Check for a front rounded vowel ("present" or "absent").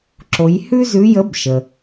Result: absent